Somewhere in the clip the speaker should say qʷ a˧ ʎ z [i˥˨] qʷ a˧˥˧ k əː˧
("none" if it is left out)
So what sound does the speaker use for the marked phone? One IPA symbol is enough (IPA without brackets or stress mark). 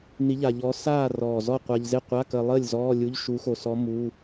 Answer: ɪ˥˨